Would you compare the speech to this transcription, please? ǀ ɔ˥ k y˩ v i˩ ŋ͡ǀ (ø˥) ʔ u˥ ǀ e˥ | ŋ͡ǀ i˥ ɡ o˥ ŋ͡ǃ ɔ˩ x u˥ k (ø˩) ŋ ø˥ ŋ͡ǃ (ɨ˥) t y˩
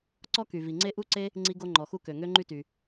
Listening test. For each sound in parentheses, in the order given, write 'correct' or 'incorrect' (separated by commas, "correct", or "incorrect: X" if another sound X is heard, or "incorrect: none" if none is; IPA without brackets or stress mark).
incorrect: e˥, correct, incorrect: y˥